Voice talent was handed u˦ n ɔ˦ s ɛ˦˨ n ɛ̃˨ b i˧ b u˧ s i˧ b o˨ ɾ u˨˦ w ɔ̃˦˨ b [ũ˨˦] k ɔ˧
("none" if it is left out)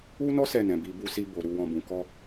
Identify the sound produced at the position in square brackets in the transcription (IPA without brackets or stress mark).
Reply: ũ˨˦